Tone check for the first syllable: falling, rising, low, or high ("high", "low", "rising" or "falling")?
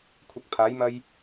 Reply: low